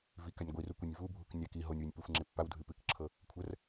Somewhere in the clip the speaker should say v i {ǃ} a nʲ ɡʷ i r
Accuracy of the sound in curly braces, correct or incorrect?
incorrect